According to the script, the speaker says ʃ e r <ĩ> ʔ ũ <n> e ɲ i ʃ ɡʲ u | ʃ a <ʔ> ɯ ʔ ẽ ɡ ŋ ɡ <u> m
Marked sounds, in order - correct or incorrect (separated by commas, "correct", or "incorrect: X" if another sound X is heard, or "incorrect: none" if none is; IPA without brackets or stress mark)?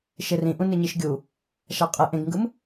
correct, correct, incorrect: qʼ, incorrect: ɯ